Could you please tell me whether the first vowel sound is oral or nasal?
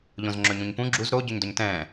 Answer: nasal